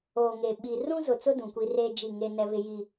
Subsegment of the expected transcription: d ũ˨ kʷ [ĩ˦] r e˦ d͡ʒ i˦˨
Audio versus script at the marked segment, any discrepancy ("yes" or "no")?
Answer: yes